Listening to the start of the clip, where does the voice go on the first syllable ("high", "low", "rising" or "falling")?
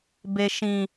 low